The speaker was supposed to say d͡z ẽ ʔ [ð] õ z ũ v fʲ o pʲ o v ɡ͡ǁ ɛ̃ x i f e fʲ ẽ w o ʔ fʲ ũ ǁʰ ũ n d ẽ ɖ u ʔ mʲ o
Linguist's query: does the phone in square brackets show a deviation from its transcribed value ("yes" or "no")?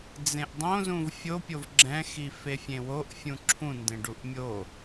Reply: yes